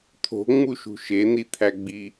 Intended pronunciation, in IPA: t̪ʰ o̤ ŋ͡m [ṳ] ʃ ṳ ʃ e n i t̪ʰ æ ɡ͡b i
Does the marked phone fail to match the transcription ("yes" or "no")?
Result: yes